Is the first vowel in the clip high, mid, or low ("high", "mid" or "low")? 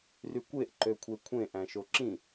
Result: high